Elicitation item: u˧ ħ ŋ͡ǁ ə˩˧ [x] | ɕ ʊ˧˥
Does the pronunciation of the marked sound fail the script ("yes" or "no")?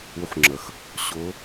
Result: no